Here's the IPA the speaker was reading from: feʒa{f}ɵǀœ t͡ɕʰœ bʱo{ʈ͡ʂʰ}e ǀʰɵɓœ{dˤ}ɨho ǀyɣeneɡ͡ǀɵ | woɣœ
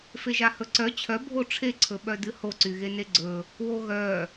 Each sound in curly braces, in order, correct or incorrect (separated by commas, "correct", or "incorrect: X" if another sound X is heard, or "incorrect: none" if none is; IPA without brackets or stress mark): incorrect: h, correct, incorrect: d